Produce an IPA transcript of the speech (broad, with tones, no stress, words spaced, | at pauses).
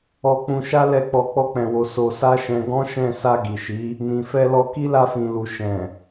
ɔ˧k͡pũ˧ʃa˦ lɛ˦˨k͡pɔ˧ k͡pɔ˦k͡pɛ̃˧wo˧ so˧sa˦ʃɛ̃˧ ɡɔ̃˦ʃɛ̃˦˨ sa˧ɡi˨ʃi˨˦ | nĩ˨fɛ˧lɔ˧ki˦ la˧fĩ˨lu˨ ʃɛ̃˨